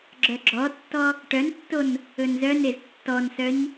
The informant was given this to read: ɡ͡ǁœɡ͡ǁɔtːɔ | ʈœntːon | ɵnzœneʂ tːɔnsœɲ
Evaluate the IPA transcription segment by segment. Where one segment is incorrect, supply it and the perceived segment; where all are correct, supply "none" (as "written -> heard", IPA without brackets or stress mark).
ʂ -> z